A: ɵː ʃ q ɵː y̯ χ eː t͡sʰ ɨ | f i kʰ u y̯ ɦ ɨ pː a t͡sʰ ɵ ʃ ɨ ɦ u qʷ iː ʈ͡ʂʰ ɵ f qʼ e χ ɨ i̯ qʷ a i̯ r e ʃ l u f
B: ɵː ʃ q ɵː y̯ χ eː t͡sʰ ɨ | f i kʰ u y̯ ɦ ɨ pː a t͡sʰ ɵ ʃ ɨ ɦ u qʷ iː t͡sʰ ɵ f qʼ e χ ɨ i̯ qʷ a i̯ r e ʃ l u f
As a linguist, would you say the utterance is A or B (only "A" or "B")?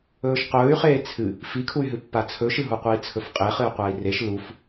B